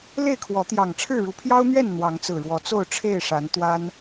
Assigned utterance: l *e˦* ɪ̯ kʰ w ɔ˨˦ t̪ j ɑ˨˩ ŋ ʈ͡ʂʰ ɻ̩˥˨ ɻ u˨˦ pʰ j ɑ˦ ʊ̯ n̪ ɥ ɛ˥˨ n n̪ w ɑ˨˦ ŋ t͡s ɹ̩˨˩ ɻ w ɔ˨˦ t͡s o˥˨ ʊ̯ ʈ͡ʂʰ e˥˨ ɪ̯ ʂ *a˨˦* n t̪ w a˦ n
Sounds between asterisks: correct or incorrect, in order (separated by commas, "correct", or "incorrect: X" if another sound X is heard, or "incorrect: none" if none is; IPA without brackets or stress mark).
incorrect: e˥˨, correct